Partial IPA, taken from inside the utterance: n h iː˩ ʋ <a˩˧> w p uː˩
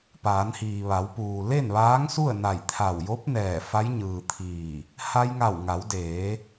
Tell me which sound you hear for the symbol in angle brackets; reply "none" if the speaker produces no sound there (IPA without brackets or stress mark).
a˩˧